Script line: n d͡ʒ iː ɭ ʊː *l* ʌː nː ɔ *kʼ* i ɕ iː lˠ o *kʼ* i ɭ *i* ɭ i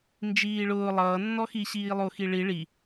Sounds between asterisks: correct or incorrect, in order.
incorrect, incorrect, incorrect, correct

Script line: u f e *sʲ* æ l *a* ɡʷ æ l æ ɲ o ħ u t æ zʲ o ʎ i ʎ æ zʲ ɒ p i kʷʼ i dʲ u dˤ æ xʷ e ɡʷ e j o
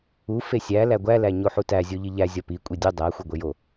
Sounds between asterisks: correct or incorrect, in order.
correct, incorrect

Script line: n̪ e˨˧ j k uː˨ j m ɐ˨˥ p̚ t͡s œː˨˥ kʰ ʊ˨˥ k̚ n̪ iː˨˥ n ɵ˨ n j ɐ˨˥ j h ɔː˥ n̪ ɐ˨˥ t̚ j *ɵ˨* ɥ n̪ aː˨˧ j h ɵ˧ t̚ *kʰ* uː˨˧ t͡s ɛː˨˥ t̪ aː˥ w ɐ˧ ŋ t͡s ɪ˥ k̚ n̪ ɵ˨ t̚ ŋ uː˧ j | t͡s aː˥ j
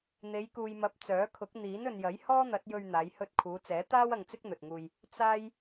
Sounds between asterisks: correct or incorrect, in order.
incorrect, correct

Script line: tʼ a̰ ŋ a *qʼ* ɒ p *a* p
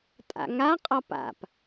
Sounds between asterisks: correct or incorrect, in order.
correct, incorrect

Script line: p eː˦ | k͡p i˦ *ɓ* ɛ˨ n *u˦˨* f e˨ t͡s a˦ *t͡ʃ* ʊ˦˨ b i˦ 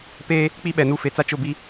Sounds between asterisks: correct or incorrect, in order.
correct, correct, correct

